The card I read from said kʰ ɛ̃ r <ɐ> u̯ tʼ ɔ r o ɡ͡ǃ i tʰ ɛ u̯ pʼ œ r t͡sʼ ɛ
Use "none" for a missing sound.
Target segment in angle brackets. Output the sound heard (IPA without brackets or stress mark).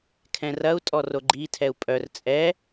ɐ